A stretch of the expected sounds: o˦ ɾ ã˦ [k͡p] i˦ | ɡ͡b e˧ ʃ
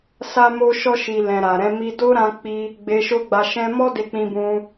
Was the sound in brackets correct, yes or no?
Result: yes